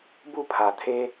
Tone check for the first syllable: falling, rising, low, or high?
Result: falling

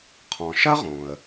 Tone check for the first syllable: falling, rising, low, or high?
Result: low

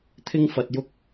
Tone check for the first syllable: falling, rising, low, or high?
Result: high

